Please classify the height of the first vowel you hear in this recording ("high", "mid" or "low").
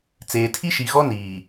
mid